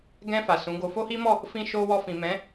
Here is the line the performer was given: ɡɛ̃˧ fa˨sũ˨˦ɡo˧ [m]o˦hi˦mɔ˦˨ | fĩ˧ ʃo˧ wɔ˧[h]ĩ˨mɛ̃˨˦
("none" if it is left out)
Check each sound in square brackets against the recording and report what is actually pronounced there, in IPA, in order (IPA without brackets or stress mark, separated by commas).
f, f